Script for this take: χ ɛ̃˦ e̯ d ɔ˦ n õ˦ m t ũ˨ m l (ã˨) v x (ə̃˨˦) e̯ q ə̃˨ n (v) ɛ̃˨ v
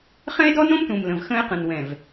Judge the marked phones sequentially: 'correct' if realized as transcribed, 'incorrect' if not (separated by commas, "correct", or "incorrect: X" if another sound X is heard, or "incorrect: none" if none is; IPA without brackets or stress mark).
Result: incorrect: ə̃˨, incorrect: ə̃˦, incorrect: w